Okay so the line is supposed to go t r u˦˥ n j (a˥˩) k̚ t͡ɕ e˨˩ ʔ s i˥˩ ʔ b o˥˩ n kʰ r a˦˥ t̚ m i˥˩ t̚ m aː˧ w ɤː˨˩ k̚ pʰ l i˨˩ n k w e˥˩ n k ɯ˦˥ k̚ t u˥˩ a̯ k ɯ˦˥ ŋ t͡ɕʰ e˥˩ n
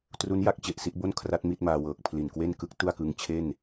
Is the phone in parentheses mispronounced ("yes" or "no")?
yes